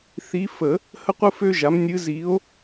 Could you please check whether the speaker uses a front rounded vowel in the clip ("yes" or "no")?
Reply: yes